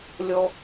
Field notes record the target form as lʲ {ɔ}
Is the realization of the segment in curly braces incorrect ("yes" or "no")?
no